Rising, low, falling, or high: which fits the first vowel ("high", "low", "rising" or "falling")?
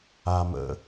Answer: low